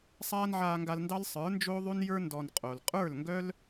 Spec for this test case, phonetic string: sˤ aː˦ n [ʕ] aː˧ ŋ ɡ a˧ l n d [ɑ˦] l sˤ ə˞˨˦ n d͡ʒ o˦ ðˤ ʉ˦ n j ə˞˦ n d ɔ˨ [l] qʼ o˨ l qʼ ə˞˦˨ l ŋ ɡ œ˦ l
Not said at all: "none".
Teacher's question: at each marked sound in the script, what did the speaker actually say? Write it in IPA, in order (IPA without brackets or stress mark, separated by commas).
ʕ, ɑ˦, n